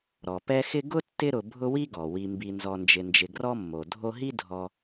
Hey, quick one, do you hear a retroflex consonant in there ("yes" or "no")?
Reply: no